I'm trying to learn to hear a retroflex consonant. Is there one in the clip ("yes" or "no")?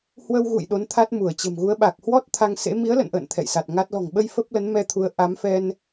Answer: no